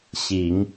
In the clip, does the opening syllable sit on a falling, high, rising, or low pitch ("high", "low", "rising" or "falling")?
rising